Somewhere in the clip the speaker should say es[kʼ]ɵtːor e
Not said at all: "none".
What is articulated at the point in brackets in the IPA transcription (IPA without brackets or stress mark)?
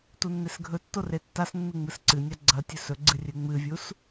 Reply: ɡʱ